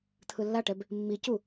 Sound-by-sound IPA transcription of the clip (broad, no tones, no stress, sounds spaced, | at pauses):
t̪ʰ ɯ lː a ʈ ɛ b | mː i c u